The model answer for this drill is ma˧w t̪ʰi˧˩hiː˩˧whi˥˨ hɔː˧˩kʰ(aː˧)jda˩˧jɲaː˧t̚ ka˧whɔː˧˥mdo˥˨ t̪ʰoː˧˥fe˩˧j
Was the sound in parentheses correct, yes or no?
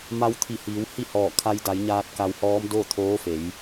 no